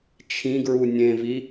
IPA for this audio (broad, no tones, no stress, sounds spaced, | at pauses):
t͡ʃʰ ĩ ɡ ɹ u nʲ ẽ v i